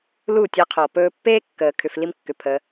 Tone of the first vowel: falling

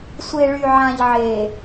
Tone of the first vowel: low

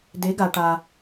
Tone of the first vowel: rising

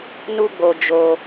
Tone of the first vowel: high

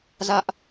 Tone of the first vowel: high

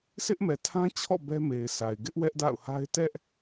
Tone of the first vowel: high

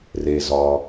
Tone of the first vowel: low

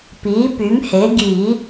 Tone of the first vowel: rising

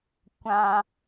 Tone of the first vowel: high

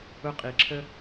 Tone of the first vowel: high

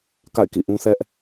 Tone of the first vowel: falling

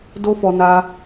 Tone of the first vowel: high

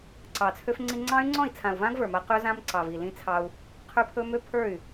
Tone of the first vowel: low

